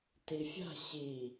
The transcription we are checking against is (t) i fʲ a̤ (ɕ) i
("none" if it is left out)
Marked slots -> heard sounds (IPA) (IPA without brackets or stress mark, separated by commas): t, ɕ